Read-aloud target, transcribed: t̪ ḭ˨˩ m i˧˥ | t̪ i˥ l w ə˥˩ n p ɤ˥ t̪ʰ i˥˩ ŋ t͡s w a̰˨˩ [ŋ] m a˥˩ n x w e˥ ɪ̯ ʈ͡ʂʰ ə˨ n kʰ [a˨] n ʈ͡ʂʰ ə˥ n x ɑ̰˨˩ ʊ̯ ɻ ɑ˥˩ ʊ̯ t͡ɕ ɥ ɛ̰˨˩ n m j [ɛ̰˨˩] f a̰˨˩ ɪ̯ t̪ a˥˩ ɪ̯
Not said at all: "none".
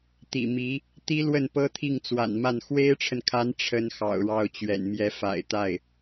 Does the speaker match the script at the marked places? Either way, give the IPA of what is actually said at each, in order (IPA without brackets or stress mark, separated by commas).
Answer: n, a˧˥, ɛ˧˥